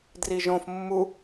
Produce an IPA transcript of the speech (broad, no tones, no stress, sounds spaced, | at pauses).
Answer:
d r i ʒ õ f mː u